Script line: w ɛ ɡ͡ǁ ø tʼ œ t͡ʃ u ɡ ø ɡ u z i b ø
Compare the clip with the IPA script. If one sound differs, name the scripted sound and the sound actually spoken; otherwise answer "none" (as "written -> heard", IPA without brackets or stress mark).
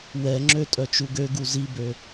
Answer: ɡ͡ǁ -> ŋ͡ǁ